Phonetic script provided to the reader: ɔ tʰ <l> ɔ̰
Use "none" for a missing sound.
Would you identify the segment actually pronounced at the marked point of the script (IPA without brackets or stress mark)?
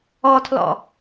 l